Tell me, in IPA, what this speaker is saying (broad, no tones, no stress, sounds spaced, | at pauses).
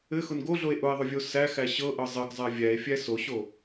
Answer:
ɘ x ʊ n ɡ o ɮ o e̯ ʔ ʊ e̯ ðˤ ʊ vʲ o s æ x æ ɕ ɤ ʔ ɤ zˤ ɘ ɡ zˤ æ vʲ æ e̯ fʲ æ s o ɕ o